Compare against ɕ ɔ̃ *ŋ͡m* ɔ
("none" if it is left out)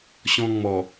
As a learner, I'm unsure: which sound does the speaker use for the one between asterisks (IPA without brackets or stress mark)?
ŋ͡m